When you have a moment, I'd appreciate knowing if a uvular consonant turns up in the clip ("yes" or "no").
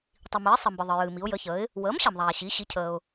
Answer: no